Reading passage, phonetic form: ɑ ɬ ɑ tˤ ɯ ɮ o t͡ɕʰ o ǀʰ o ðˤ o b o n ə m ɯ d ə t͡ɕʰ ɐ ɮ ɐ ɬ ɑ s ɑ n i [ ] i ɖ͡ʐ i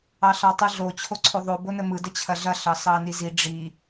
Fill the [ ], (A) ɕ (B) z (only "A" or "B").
B